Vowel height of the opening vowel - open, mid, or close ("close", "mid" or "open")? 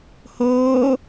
mid